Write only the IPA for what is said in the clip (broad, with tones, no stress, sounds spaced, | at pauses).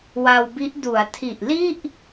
w a˧ w b i˦˥ ʔ d u˩˦ a̯ tʰ i˨˩ ʔ l i˥˩ ʔ